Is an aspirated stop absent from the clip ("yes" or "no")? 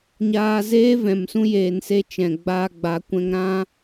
yes